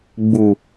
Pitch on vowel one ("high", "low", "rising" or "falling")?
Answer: low